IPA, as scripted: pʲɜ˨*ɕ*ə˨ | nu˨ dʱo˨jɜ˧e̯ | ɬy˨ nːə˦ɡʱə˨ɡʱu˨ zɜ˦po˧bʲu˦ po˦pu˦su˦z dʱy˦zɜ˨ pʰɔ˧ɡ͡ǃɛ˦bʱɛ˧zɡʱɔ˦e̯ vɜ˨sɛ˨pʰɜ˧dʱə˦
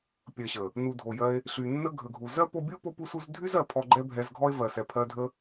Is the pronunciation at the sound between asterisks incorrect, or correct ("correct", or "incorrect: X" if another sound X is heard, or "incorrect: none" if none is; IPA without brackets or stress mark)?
correct